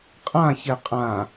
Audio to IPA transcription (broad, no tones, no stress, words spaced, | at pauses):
qʼãçɛ qʼã